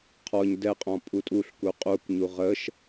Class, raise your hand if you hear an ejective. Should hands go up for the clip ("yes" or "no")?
yes